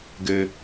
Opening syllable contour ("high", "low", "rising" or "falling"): low